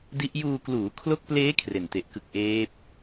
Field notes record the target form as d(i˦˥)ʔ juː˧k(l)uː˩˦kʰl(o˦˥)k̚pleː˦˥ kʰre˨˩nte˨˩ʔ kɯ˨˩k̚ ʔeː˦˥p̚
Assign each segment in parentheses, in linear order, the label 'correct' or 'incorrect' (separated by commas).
correct, correct, correct